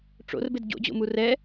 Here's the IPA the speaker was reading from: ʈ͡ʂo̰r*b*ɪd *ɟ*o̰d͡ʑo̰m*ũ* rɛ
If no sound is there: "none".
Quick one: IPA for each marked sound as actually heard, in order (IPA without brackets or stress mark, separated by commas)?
b, ɟ, u